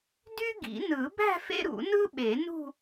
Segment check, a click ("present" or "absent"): absent